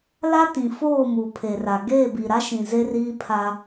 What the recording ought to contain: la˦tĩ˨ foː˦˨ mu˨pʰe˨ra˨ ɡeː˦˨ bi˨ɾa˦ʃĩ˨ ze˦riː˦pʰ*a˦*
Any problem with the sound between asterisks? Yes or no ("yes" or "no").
no